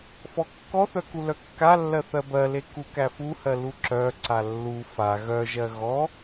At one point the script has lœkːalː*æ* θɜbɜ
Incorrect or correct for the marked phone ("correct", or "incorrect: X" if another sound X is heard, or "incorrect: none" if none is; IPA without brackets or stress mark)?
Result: incorrect: ɜ